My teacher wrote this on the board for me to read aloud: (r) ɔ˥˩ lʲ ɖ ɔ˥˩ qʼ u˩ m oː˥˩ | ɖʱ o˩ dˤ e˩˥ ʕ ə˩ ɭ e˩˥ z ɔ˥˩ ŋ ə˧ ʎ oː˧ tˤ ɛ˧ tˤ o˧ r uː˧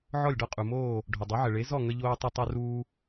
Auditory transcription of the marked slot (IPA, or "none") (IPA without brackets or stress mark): ʕ